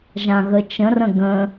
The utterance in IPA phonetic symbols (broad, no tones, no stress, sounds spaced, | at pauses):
ʒ ã ɣ ə t͡ʃ ə̃ r ə̃ ɡ ə̃